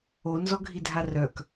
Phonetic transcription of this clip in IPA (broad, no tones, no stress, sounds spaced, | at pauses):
o n z ɔ ɡʱ i dʱ a r œ k